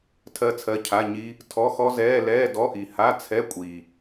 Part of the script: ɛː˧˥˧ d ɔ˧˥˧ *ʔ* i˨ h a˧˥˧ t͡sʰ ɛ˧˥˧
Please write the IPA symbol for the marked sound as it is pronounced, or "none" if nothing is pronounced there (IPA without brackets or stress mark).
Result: ʔ